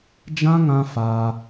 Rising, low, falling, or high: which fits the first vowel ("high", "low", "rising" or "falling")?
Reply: high